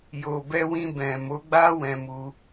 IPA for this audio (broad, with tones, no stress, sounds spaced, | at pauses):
j o˨ b ɛ˧ w ĩ˧ b ɛ̃˨ m o˨˦ ɡ͡b a˦ w ɛ̃˧ m u˧